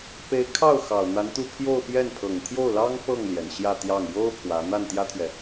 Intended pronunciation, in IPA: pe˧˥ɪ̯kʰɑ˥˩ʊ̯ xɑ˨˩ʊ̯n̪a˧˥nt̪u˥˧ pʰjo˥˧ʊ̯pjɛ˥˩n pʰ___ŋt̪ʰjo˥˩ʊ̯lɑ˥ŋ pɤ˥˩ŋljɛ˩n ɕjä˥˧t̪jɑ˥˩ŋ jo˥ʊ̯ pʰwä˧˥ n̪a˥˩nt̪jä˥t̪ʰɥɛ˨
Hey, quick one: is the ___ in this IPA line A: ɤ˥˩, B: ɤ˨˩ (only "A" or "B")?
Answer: B